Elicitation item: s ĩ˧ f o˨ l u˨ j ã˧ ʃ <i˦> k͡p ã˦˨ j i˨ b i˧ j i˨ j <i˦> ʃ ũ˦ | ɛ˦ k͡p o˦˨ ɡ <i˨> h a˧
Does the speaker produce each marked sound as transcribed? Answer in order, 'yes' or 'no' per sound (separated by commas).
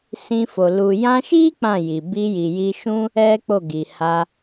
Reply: yes, no, yes